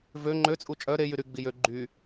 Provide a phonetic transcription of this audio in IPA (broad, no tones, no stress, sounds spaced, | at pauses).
v ø ŋ͡ǃ ø t͡sʼ u t͡ʃʼ œ ɾ e j y ɾ y ɡ͡b i j ø ɡ͡ǃ y